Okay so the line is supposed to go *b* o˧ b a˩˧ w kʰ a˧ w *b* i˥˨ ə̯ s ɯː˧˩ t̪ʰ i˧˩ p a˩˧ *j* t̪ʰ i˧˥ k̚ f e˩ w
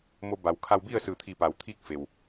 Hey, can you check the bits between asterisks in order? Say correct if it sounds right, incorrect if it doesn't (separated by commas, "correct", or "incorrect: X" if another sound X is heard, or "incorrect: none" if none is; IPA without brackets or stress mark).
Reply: incorrect: m, correct, incorrect: w